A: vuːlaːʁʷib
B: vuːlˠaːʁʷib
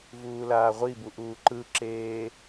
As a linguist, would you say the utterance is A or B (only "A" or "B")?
A